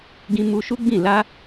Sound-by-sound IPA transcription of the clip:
ɡĩ˧mu˧ ʃu˦ɡ͡bĩ˦˨ la˧

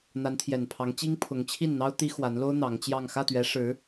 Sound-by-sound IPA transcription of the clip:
n̪a˧˥nt̪ʰjɛ˨˩npʰɑ˧˥ŋ t͡ɕi˥ŋpʰʊ˧˥ŋt͡ɕʰi˥˩n n̪ɑ˥ʊ̯ t̪i˥xwa˧˥nlo˥ʊ̯ n̪ɑ˧˥ŋt͡ɕjɑ˥˧ŋ xä˥˩t̪ɥɛ˧˥ʂɻ̩˧˥

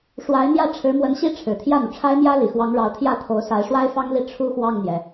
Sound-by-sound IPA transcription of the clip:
ʂwa˧˥ɪ̯n̪jä˥˩ ʈ͡ʂʰɻ̩˧˥mwə˧˥nɕi˥ ʈ͡ʂʰɻ̩˨˩t̪ʰjä˥˩n̪u˩ʈ͡ʂʰa˥ɪ̯ mjä˥li˨˩xwɑ˧˥ŋɻɑ˧˥ʊ̯ t̪ʰjä˥˩t̪ʰo˧˥ʊ̯ sa˧˥ɪ̯ʂwa˥ɪ̯fɑ˥ŋli˥˩ ʈ͡ʂʰu˥xwɑ˥˩ŋn̪jɛ˩

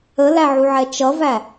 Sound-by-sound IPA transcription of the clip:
əlæʕuʕɛ t͡ʃʌvæ

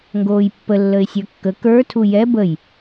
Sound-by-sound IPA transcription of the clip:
ŋɡoːjpːə lːəɪ̯sʲə˞kːə kə˞ tʰujɛ bəj

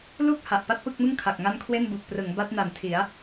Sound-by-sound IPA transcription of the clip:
lu˥˩k̚ ha˨˩ʔpa˥˩t̚pɯ˥˩k̚mɯ˥˩ŋ kʰa˨˩k̚ŋa˥˩n kʰwe˥˩nbu˨˩k̚prɯ˩˦ŋ ba˦˥t̚na˨˩ntʰi˩˦a̯

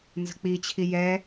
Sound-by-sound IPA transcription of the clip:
nzə̤k͡pit͡ɕʰi jɛ

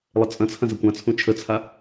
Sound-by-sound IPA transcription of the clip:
lˠət͡sʼɐ̃t͡sʰɐ̃ zɐkʷãt͡sʰũ t͡ʃʰət͡sʰa

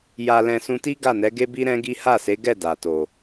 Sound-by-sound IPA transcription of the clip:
ja˧lɛ̃˧ sũ˧ti˦ ɡa˦˨nɛ˨˦ɡe˦bi˦ ɾɛ̃˦ɡi˦ ha˦˨se˨˦ɡɛ˦˨ da˨to˨

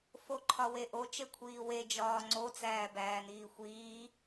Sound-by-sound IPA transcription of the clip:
foǃʰɒweʔo t͡ʃekʷʰiːwe d͡ʒɒːŋ͡ǀo t͡sæːbæːniːxʷiː

